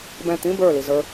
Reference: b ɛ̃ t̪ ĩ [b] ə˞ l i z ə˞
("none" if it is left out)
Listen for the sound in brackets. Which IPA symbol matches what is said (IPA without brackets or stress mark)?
b